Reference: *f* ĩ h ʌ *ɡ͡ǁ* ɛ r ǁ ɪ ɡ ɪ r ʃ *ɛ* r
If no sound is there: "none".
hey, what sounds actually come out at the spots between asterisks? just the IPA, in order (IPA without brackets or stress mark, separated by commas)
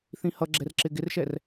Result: θ, ɡ͡ǁ, ɛ